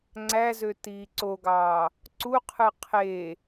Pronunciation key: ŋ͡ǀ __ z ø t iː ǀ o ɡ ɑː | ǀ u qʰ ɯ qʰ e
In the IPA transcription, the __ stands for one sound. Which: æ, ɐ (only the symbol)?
æ